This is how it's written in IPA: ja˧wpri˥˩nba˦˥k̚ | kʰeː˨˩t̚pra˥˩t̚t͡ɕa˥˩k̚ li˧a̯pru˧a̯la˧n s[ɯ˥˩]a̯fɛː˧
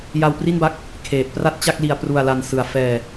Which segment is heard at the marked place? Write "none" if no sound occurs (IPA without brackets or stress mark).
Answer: ɯ˨˩